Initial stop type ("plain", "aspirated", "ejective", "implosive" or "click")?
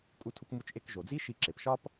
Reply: ejective